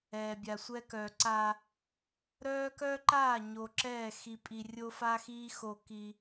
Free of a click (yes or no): no